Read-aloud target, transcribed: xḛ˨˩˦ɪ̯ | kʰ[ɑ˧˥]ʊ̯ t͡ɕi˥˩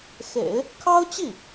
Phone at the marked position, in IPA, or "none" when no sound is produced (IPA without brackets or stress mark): ɑ˥